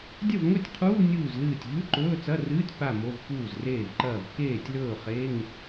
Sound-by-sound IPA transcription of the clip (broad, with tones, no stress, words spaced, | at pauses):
dʲɐ˥˩vŋɵ˥˩tʲqʰuː˧˥˧ nʲuː˥˩zlɨː˥˩tʲ ʎʉ˧˥˧ǃɵː˧˥˧t͡sɐ˧˥˧rɨː˧˥˧tʲ pa˥˩ mo˧˥˧v puː˥˩zreː˥˩vǃɐː˥˩v keː˥˩tʲlɵː˥˩ χe˧˥˧ŋ